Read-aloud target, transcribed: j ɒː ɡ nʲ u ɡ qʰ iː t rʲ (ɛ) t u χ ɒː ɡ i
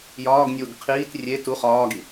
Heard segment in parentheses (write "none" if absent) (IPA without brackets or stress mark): e